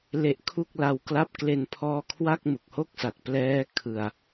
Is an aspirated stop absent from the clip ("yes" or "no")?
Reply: no